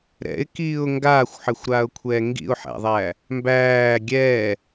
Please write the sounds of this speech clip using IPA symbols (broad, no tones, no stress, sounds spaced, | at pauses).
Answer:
ɾ ɛ̰ ɪ̯ k iː ʊ̯ ŋ ɡ aː xʷ ħ ɘ xʷ ɾ aː ʊ̯ kʷʰ ɛː ŋ ɡ ḭ ʊ̯ ħ æ̰ ðˤ æː | m b æː ɡʲ ɛː